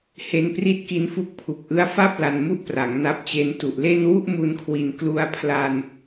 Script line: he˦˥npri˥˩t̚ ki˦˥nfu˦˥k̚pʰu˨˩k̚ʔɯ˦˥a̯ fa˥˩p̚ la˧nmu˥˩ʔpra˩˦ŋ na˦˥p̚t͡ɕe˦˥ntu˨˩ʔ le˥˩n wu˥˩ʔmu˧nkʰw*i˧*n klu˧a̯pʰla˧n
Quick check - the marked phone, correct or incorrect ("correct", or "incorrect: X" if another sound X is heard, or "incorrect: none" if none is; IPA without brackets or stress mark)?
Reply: incorrect: i˨˩